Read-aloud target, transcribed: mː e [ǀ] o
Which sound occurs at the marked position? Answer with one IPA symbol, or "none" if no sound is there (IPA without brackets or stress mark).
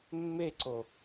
ǀ